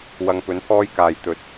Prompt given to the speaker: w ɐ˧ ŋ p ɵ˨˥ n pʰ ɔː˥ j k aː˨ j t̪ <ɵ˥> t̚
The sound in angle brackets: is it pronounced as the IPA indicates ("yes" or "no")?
no